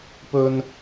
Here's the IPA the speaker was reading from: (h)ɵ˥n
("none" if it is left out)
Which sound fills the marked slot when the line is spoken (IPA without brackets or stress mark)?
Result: p